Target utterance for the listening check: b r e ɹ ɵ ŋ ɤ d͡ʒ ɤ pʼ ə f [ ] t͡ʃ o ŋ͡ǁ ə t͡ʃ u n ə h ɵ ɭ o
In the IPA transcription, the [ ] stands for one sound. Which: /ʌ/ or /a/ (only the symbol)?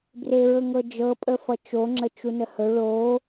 ʌ